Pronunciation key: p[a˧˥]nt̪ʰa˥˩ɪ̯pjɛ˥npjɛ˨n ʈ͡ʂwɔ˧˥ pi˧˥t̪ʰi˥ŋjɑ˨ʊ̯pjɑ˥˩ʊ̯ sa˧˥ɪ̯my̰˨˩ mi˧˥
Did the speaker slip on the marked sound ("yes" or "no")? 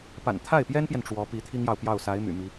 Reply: yes